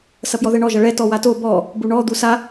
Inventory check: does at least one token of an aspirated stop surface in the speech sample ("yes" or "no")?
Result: no